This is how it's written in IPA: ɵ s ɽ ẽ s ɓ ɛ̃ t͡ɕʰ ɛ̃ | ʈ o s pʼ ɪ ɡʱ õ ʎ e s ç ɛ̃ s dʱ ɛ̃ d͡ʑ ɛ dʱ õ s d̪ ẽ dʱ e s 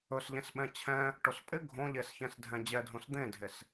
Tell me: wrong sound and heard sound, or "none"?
ɽ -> ʎ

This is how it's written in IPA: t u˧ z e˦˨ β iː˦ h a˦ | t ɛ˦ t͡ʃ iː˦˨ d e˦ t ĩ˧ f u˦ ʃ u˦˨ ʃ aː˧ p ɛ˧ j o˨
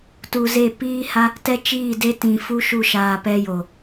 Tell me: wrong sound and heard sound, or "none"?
β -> p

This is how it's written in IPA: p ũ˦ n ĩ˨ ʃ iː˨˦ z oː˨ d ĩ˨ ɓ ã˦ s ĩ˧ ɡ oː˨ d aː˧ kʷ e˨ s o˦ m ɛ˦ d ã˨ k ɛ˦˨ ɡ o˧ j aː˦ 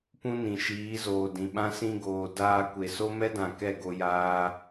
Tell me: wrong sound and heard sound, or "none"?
none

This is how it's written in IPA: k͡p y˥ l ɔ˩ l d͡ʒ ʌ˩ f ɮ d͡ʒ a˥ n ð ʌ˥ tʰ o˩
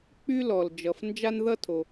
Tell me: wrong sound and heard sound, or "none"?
ɮ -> n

